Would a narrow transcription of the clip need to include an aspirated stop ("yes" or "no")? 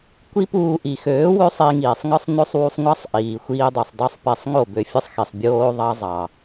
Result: no